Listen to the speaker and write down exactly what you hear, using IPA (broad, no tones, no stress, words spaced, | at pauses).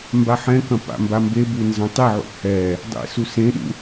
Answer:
mbaħɛ̃kɐ̃ pa̰mbambebu nzɐ̃tˤiʕṵ hɛ | dˤḛsu sẽɗṵ